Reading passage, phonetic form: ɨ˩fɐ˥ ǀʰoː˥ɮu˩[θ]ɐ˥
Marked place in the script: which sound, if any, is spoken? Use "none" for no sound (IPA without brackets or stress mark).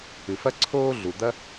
d̪